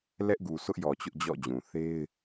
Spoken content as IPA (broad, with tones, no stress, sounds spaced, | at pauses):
l ɛ˦ ʔ ɡ u˨ sʰ ʊ˦ ʔ j ɔ˨ t͡ɕ ʊ˦ ʔ d͡ʑ ɔ̰˦˨ d͡ʑ ũ˨ θ e˦ ɪ̯